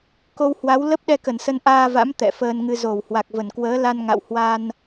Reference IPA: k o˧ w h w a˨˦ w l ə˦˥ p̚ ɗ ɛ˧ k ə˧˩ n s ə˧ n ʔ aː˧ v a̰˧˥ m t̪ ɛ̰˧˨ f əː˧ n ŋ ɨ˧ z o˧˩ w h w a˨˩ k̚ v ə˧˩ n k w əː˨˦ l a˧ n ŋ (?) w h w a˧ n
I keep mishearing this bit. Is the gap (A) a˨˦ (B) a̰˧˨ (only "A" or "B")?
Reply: B